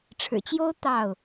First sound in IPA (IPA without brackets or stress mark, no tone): ʈ͡ʂʰ